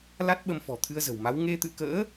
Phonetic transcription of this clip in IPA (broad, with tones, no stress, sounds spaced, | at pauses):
l a˦˥ t̚ ɓ ə˧ m f ɔ̤˨˩ t̪ʰ ɨ˧ ə̯ z ə̤˨˩ w m a˨˦ w ŋ e˧ t̪ ɨ̰˧˨ k ə̰ː˧˥